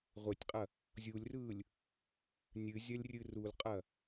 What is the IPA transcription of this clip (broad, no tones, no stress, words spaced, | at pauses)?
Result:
ʁʷetʲqʼɐ | zʲulʲrɯːlʲ | nʲɨzʲɐlʲrʲɨ rulqʼɐ